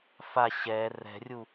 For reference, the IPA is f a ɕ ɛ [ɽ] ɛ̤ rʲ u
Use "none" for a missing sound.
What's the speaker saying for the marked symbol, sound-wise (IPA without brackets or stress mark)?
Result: r